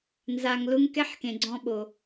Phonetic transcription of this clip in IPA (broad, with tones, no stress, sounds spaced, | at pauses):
n z a˨ ŋ l ʊ˧ ŋ k ɛ˦ ħ k ẽ˨ ɡ͡ǀ ɔ̃˧ ɓ o˨